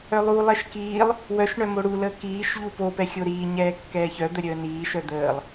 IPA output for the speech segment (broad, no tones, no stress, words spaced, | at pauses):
œlˠulˠɛʃ kiːlˠ | wœʃɳœ moɽuləː kiːʃʎu popɛ xʲoɾiːɲɛː kːɛːçœd̪ə ɾʲəːniːʃœ d̪əːlˠ